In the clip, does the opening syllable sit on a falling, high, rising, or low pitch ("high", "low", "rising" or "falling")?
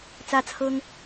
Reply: falling